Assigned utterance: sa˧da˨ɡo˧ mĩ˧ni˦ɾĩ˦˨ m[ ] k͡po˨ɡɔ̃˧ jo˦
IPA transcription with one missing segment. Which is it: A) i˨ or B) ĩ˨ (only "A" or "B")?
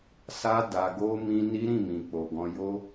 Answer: B